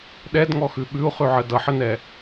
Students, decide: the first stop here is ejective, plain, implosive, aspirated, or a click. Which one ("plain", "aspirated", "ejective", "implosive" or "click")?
implosive